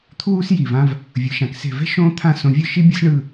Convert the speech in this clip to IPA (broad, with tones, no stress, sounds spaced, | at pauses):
t̪ʰ uː˥ s j i˧˩ v ã˥ v | vʲ ɯ˩˧ ʃ ã˩˧ k s e̤˧˩ v ɛ̤˥ ʃ õː˥ t̪ʰ ã˥˧ s õ˧ vʲ ɯ˥˧ ʃ i˥ bʲ ɤ˥ s ɳ ɯ˥˧